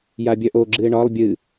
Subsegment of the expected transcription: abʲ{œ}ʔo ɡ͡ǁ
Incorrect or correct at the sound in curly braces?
correct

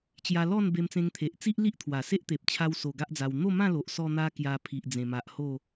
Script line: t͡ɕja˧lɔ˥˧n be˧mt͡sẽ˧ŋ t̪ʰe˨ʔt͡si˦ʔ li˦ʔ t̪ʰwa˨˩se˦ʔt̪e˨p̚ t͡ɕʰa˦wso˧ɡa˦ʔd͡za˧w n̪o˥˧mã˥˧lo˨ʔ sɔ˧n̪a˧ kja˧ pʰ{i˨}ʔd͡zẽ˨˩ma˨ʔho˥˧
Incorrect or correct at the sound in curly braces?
correct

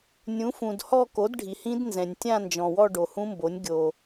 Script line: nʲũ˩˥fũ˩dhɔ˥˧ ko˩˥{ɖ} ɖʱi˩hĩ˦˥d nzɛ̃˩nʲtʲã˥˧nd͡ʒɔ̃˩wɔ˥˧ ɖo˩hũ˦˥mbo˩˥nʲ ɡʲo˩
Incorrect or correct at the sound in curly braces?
incorrect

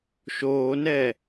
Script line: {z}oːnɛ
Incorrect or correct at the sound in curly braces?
incorrect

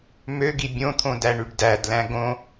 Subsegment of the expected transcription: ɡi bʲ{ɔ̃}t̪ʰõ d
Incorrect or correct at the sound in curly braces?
incorrect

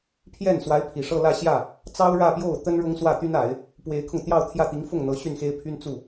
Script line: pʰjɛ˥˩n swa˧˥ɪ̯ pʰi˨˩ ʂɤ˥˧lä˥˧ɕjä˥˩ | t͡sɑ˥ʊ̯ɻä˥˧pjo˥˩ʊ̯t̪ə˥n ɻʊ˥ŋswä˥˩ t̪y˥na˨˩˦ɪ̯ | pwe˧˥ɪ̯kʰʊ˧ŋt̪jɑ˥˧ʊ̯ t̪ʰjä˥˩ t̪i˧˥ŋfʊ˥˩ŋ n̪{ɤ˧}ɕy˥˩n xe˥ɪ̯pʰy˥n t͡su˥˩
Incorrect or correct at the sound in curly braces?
incorrect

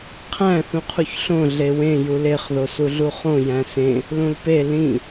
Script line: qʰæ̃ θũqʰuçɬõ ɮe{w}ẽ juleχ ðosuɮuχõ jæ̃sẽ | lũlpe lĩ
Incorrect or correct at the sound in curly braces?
correct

